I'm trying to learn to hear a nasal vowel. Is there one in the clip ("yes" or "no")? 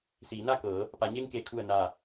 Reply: no